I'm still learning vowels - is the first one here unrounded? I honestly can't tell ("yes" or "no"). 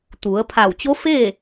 no